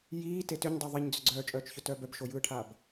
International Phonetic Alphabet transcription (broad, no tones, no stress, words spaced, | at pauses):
jiːte tʏɲdˤœ ðˤiɲd͡zʏ ɡ͡ǀœːt͡ʃʼœːt͡ʃçʏtœː bœbʃojɯːʈʰaːb